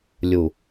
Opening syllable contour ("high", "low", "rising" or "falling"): low